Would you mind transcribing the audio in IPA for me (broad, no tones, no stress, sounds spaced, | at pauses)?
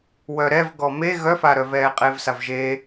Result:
w œ ɾ ɛ v ɡ ɔ m e ɣ œ f a ɾ œ v ɛː qʼ eː v s a v ʒ eː